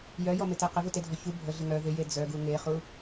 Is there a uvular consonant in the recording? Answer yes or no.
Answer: yes